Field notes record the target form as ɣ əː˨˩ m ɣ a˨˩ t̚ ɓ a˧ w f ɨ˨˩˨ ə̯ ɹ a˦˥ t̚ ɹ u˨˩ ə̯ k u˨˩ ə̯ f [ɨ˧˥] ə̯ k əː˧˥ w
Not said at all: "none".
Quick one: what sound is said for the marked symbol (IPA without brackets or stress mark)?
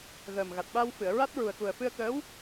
ɨ˧